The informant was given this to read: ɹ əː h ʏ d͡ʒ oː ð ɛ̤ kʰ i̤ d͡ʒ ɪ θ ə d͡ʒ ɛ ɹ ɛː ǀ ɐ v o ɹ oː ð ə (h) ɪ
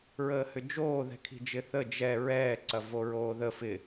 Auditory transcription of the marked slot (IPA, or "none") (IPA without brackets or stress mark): f